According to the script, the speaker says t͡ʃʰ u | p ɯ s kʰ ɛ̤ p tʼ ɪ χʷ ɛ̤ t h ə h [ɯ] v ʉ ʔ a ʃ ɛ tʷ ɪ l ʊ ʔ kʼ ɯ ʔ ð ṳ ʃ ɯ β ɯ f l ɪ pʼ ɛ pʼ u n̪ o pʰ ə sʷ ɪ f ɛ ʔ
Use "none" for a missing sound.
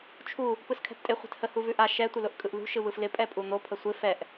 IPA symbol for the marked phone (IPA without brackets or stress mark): u